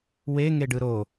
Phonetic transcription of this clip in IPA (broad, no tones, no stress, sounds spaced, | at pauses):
w e ŋ e ɖ ɯ ɾ o